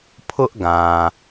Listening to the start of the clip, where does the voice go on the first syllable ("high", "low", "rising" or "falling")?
high